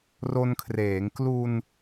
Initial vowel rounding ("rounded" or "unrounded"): rounded